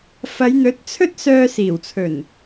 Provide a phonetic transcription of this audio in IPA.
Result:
f ɐ˨˧ j n̪ ɵ˨˥ t̚ t͡sʰ ɵ˥ t̚ s œː˧ s iː˨˩ w t͡sʰ ɵ˨˩ n

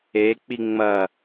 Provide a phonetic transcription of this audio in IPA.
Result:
e k͡p i ŋ͡m ɐ

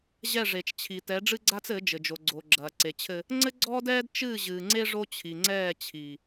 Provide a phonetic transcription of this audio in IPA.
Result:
ʑ ɛ˦˨ ʐ e˨ t͡ʃ t͡ɕʰ i˨ t ɛ˨˦ ɖ͡ʐ ɨ˦ ɡ͡ǀ a˦ t͡s ɘ˨˦ d͡ʒ ɘ˨ d͡ʒ o˨ ɡ͡ǀ o˨ ɡ͡ǁ ɐː˨ ǀ e˨ t͡ɕʰ ɘ˦ | ŋ͡ǀ ɘ˦ ɡ͡ǀ ɔː˦ d ɛː˦ d t͡ʃ ɨː˦˨ ʑ ɨː˨ ŋ͡ǀ e˦ ʐ o˦ t͡ɕʰ i˨ ŋ͡ǀ ɛː˦˨ t͡ɕʰ i˨

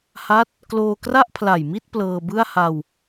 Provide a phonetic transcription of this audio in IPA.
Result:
h a˦˥ t̚ | k l oː˧ k r a˥˩ ʔ pʰ l a˨˩ j m i˥˩ t̚ p l ɤː˧ b ɯ˥˩ a̯ h a˧ w

